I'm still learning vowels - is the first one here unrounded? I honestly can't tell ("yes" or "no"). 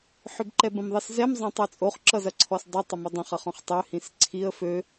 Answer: no